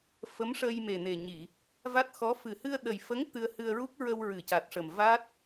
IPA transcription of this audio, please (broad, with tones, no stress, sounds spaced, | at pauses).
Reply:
f ə˧˥ m ʂ ə˧ j m e˨˩ n e˨˩ ɲ i˨˩˨ | v a˦˥ t̚ x ɔ˧˥ f ɨ˨˩ h ɨ˧ ə̯ ɗ ə˨˩ j f ə˧˥ ŋ t̪ ɨ˧ ə̯ h ɨ˧ ə̯ ɹ u˦˥ k̚ ɹ ə˧ w ɹ ɨ˨˩ c a˨˩ t̚ ʂ ə˨˩ m v a˦˥ t̚